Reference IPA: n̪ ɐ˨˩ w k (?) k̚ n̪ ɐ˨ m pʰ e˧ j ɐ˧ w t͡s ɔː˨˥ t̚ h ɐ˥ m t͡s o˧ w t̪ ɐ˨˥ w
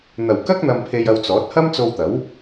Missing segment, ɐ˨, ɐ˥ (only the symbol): ɐ˥